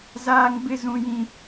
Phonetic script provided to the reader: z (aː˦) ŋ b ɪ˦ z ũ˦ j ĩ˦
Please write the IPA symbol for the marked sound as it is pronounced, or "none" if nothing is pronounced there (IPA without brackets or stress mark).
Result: aː˦